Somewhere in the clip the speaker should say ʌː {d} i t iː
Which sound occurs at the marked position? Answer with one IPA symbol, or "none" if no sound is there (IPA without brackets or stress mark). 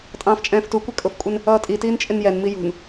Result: tʼ